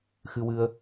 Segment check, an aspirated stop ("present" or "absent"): absent